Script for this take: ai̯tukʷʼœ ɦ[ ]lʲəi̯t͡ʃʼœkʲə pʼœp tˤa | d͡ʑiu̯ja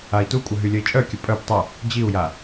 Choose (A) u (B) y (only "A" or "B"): B